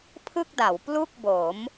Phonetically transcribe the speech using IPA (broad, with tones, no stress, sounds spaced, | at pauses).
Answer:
pʰ ɯ˥˩ k̚ d a˩˦ w p l u˥˩ k̚ b o˩˦ m